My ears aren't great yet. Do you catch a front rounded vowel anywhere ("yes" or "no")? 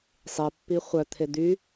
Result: yes